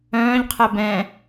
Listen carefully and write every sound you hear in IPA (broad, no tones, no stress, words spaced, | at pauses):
œ̃ːʎqʰɛ bɛ̃